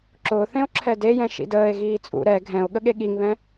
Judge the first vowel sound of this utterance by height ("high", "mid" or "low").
high